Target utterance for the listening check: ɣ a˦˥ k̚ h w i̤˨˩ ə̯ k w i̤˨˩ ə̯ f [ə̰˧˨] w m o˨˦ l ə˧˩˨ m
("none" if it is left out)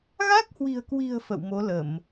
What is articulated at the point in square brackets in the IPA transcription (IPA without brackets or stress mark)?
ə̰˧˨